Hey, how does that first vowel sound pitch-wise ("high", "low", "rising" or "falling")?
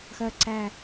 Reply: low